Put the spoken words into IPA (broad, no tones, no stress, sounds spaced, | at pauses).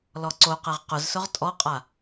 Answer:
l ɔ ǀ o q ɛ ʁ q ʊ z s ʊ ʁ tʼ ɔ qʼ a